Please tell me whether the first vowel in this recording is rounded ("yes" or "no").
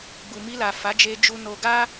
yes